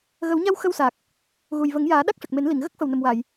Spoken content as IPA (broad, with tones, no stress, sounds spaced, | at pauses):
ɣ ə˨˩˦ w ɲ a˧ w x ə˧ w s aː˨˩ k̚ | ɣ u˨˩ j v ə˨˩˦ ŋ j aː˨˩˦ ɗ a˦˥ k̚ ʂ ə˨˩ k̚ m e˨˩˦ n l i˨˩˨ ŋ ɣ ə˦˥ k̚ f ə˨˩ w n ə˨˩ m w aː˨˩˨ j